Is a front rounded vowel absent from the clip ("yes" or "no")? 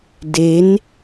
yes